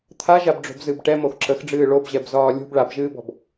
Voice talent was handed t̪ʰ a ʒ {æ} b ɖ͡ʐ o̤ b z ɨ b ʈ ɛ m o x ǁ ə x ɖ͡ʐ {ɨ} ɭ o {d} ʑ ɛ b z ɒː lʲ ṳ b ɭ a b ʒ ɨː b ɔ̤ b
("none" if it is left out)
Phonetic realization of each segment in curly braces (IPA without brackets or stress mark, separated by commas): a, ɨː, b